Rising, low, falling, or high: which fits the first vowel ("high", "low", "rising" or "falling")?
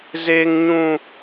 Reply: high